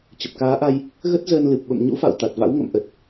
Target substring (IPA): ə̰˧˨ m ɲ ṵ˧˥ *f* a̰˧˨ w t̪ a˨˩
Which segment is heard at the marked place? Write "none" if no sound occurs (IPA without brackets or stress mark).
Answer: f